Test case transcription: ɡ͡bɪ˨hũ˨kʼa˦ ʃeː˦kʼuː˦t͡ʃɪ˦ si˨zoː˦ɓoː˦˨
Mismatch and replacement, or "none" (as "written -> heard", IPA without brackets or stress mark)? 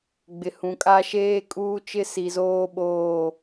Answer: none